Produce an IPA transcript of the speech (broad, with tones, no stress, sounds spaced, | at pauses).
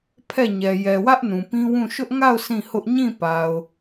pʰ ɛ˦˨ ɲ ɛ˨ j ɛ˨ w ä˦ ʔ n ũ˨ p ĩ˦ w ũ˦˨ ʃ ʊ˦ ʔ ŋ a˦˨ ʊ̯ sʰ ĩ˦˨ h ʊ˦ ʔ ɲ ĩ˦˨ p a˨ ʊ̯